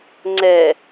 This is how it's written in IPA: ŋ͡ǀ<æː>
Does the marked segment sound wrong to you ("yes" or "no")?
yes